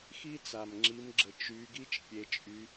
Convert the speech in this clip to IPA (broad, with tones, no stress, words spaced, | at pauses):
xi˥ t͡sa˨˩mŋ͡ǁi˨˦mɡ͡ǁə˨˩ t͡ʃy˨˦ɡi˥t͡ʃ pʲe˨˦t͡ʃʼy˨˦